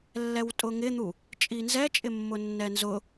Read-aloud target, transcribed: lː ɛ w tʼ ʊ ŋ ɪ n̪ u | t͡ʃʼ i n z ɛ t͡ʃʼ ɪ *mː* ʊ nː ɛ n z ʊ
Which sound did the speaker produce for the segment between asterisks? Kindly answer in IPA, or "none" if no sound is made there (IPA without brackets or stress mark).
mː